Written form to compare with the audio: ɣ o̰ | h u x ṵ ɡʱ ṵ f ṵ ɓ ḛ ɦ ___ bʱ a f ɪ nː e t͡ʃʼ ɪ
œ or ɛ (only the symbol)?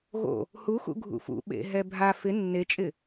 ɛ